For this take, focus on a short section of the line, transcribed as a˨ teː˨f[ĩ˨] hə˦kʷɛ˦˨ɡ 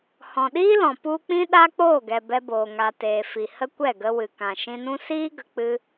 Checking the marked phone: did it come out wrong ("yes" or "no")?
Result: yes